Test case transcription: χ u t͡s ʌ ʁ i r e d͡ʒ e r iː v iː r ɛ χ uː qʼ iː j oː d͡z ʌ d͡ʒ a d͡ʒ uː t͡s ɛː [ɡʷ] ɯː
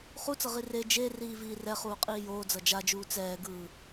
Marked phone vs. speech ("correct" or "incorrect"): incorrect